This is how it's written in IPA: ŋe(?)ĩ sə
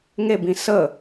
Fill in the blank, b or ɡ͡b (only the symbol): b